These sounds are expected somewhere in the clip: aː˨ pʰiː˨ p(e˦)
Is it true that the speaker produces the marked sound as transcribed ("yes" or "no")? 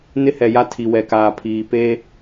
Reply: yes